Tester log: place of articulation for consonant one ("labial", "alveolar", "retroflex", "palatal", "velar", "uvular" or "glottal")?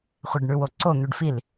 uvular